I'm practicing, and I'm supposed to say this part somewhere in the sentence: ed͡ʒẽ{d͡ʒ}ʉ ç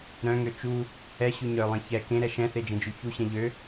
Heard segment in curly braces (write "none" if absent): d͡ʒ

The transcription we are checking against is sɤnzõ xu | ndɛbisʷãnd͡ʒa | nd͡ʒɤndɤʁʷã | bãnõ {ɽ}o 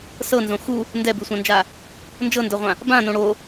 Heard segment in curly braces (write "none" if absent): ɽ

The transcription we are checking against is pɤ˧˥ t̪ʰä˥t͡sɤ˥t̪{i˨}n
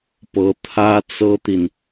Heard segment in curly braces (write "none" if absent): i˨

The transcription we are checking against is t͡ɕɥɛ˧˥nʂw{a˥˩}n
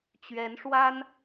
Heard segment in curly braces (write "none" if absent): a˥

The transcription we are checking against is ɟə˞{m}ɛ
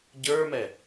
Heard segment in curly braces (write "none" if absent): m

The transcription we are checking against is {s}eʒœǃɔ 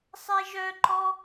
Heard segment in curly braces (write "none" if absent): sˤ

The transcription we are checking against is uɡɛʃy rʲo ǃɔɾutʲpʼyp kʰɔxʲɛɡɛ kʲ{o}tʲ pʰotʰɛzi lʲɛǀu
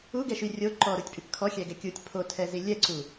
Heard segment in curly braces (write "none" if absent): u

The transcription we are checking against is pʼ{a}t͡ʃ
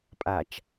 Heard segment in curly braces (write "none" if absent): a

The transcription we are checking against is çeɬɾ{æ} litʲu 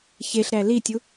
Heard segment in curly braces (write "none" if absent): æ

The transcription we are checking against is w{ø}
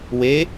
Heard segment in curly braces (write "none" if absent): e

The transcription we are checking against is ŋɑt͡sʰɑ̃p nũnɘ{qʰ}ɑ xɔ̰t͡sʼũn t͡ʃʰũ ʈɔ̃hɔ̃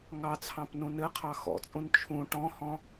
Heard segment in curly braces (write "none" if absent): qʰ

